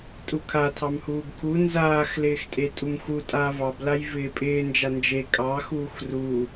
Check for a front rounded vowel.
absent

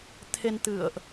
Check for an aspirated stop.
present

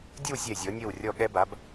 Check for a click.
absent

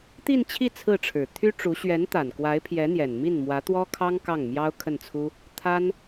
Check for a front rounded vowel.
present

